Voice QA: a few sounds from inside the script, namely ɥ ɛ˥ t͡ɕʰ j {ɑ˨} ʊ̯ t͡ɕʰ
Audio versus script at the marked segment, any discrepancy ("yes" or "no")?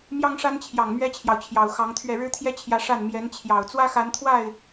no